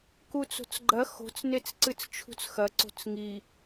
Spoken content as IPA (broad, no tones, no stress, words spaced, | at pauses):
kut͡so̤t͡sɡ͡ǃɐ xo̤t͡snet͡s ǀɨt͡st͡ʃʰṳt͡sxɐ ǀo̤t͡sŋi